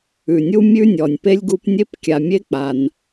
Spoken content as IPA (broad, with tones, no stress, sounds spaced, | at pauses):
ʉ˩ nʲ u˥ mʲ ʉ˥ nʲ ɔ˩ nʲ p e˥ lʲ ɡ u˦ p nʲ e˥ p kʲ a˨ mʲ e˥ k͡p a˨ n